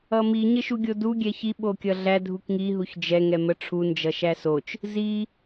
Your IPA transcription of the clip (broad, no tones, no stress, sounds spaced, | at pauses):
ʌ m i ɲ ə ʃ u ɡʲ o d u ɡʲ ɛ ç i ɓ o kʲ ʌ ɮ æ dʱ u k ŋ i ɦ u ç d͡ʒ ɛ ŋ ɛ m ə ʈ͡ʂʰ u n d͡ʒ ʌ ʃ æ s o t͡ʃ | z i